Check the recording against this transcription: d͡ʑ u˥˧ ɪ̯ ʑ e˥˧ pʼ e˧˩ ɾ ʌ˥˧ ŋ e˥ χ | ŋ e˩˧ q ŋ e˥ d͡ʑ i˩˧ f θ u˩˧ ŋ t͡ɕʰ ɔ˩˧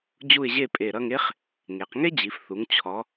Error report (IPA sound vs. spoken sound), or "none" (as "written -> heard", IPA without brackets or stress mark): none